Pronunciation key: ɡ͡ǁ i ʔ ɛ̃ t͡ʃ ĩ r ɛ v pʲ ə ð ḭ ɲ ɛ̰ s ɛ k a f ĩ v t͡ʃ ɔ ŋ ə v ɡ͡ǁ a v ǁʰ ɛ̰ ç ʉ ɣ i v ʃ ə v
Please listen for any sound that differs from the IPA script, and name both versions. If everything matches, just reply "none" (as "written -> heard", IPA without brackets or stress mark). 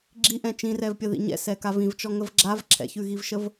f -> v